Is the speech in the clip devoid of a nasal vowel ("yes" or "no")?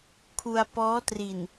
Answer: yes